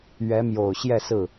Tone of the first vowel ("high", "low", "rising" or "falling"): rising